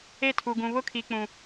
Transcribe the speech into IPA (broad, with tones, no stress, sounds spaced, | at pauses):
e˦˨ tʰ u˨ ɡ ũ˨ β ʊ˦ kʰ i˨ k͡p ũ˨